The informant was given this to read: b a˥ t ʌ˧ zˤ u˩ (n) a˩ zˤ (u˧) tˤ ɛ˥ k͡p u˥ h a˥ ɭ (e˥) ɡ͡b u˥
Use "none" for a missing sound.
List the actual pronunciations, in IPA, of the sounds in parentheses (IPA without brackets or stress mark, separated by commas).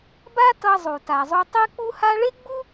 t, u˧, e˥